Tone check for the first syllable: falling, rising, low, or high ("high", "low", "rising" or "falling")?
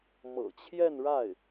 low